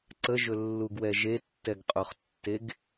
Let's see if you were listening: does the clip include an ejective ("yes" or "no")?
yes